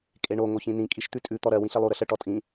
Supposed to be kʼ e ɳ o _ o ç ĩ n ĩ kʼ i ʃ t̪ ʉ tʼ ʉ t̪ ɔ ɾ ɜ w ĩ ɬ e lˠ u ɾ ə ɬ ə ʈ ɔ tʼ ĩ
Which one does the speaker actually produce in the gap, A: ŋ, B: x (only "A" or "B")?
A